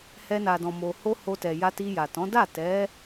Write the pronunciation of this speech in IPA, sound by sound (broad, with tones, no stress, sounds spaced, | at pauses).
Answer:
h ɛ˧ n a˨ d ɔ̃˨ m o˨ h o˧ h o˧ t ɛ˨ j a˧ t i˧ j a˨ t ɔ̃˨˦ d a˦˨ t ɛ˨˦